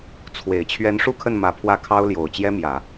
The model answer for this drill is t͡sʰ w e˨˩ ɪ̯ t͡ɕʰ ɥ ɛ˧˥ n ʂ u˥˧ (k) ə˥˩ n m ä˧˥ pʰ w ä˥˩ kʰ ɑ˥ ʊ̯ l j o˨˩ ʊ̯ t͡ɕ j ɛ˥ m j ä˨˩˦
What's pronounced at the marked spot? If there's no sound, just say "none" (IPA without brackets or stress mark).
kʰ